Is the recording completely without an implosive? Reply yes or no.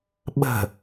no